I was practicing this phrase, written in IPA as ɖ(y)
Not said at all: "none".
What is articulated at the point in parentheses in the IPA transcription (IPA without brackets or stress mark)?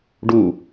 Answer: u